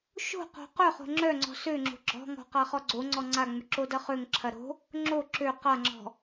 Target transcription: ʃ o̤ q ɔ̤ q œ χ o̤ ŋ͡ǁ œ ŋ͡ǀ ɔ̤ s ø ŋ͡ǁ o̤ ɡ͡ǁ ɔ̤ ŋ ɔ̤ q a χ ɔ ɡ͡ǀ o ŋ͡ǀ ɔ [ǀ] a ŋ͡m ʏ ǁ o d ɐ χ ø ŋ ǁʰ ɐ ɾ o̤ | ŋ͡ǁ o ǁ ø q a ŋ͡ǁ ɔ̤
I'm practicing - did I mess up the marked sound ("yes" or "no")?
yes